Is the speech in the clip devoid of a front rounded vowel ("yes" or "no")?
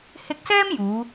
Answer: yes